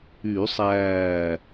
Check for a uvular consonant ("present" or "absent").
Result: absent